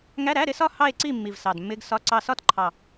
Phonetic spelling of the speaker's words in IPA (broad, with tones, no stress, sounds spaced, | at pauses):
ŋ æ˧˥˧ ɾ æ˧˥˧ ɾ ɪ˧˥˧ s ɒ˥˨ h ɑ˥˨ e̯ ǀ i˥˨ mː i˨˩ v s ɑ˨˩ d mː ɪ˧˥˧ ɡ s ɒ˧˥˧ ǀ ɑ˥˨ s ɒ˥˨ t ǃʰ ɑ˨˩